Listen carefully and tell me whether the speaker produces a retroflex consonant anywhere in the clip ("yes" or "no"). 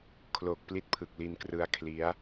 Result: no